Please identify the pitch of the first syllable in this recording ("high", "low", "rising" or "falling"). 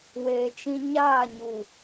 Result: low